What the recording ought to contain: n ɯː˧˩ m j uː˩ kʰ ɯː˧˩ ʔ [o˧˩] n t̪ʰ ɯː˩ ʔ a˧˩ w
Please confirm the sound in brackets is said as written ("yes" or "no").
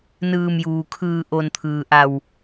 yes